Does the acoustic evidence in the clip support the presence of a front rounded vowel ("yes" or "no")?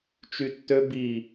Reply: yes